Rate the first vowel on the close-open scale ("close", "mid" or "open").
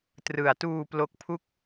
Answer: close